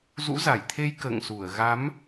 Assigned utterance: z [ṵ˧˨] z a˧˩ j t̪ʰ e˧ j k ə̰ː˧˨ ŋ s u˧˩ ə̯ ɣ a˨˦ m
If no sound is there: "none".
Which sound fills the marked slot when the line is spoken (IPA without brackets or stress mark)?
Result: ṵ˧˥